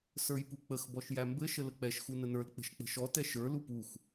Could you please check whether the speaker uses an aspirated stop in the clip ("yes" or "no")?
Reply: no